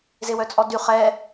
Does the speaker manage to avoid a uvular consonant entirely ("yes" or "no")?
no